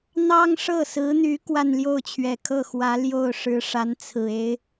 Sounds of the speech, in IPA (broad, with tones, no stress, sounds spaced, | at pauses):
n̪ ɑ˥ ŋ ʂ ɤ˥˩ s ɹ̩˧˥ n̪ y˧˥ k w a˥˧ n l j o˥˩ ʊ̯ t͡ɕʰ ɥ ɛ˨˩ kʰ ɤ˥˩ x w ä˧˥ l j o˥˩ ʊ̯ ʂ ɻ̩˧˥ ʂ a˧˥ n t͡sʰ ɹ̩˨˩ e˧˥ ɪ̯